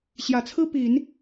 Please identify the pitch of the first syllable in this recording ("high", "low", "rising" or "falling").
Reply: low